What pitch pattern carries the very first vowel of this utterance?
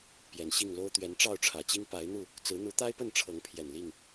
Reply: low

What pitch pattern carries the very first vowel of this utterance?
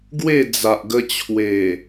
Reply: falling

